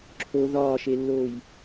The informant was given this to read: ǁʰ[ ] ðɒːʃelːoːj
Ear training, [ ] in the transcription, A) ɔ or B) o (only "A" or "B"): B